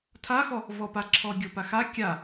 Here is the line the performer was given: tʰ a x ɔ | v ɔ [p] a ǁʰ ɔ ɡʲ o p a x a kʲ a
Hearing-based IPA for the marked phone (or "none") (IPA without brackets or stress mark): p